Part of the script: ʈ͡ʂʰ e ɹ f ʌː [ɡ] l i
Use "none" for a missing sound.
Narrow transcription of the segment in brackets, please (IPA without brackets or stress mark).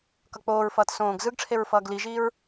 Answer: ɡ